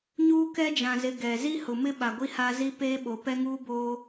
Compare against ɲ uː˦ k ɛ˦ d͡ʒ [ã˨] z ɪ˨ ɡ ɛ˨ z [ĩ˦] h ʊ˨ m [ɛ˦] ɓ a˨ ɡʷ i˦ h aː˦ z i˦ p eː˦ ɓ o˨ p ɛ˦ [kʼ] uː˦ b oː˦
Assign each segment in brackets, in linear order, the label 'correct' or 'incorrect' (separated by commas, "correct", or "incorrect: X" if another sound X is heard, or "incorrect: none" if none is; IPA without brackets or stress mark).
correct, incorrect: i˦, incorrect: ɪ˦, incorrect: ŋ